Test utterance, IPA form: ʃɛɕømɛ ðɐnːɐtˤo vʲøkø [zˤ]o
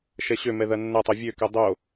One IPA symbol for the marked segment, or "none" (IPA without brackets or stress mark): dˤ